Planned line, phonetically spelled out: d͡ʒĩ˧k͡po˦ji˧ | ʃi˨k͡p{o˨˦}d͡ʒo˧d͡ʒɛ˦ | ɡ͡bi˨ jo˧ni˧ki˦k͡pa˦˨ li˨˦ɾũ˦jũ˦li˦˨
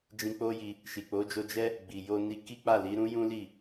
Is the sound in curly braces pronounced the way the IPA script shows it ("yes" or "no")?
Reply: yes